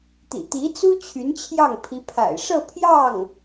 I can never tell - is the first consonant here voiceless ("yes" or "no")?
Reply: yes